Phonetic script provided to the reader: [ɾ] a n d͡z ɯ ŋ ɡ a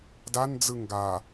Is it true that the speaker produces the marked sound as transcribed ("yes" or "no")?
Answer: no